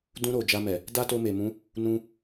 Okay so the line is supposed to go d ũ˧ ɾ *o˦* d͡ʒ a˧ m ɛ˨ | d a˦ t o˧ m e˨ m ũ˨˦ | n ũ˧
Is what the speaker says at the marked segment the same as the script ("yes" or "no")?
no